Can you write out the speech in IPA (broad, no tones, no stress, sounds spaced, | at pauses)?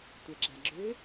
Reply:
tʷ ɛ ɡ͡ǁ a ɡ͡ǁ ø